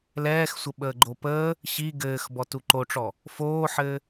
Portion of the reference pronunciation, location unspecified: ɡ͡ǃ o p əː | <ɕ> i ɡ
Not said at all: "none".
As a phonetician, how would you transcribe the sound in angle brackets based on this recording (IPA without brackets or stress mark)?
ɕ